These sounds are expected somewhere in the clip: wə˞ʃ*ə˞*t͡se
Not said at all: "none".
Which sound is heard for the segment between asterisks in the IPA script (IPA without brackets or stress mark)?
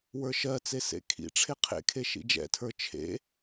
ɜ